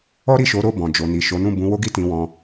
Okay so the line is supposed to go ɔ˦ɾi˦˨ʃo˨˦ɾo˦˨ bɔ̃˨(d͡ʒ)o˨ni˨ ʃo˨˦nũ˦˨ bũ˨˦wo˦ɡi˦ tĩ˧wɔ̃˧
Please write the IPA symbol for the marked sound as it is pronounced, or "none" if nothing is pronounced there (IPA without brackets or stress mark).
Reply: d͡ʒ